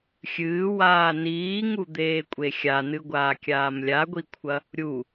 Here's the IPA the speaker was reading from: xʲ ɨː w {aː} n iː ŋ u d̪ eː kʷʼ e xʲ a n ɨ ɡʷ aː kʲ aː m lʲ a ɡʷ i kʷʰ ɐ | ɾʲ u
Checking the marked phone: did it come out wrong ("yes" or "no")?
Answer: no